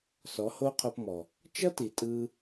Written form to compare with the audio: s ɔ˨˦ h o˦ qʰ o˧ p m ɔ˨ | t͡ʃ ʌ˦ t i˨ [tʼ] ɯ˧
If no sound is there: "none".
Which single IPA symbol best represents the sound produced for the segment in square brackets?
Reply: tʼ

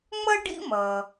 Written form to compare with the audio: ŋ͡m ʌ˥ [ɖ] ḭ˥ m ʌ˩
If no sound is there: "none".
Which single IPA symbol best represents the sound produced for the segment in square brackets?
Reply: ɖ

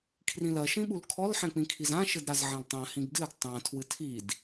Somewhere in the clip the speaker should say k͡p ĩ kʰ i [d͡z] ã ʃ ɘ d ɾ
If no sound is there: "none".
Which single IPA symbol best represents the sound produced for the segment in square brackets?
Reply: z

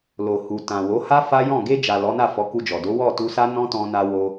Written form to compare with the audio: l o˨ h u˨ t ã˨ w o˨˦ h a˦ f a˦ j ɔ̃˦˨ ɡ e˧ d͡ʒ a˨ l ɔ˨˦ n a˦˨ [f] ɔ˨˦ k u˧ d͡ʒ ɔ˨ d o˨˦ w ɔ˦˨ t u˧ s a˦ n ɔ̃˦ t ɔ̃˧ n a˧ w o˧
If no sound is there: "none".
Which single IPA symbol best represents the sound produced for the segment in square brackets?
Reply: f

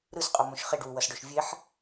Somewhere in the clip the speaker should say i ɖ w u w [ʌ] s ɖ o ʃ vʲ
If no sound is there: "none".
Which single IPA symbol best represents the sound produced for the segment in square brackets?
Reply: ʌ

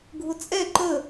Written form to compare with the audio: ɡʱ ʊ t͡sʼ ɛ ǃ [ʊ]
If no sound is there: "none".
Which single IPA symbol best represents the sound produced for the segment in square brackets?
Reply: ə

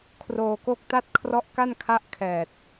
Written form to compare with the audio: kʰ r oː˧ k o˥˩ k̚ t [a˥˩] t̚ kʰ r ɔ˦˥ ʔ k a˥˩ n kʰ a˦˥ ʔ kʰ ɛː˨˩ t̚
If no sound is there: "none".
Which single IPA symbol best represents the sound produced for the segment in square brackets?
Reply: a˥˩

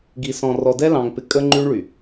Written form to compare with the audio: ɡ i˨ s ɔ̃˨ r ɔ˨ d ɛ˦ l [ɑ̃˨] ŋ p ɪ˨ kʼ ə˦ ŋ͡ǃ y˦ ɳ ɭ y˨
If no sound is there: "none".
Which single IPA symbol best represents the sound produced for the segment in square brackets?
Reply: ɑ̃˨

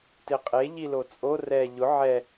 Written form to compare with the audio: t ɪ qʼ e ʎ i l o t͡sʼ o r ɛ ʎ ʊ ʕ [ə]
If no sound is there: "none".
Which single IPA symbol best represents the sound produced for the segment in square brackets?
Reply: ɛ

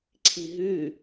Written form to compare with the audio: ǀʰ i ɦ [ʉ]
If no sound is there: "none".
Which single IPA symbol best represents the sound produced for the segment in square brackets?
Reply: ʉ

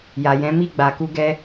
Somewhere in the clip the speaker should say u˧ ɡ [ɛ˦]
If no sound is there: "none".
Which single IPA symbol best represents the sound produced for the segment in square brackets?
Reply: ɛ˦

